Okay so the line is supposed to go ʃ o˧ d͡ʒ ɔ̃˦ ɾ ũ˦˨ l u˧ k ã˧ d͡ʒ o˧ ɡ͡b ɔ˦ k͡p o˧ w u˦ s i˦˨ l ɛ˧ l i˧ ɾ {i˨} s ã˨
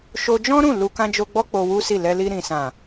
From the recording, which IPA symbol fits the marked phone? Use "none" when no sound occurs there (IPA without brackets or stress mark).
ĩ˨